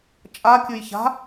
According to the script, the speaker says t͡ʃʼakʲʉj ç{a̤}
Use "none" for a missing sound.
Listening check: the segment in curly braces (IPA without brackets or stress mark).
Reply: a̤